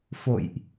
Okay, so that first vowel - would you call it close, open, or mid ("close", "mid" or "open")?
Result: mid